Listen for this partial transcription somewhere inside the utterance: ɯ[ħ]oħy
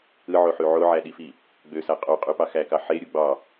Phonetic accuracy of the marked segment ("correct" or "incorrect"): incorrect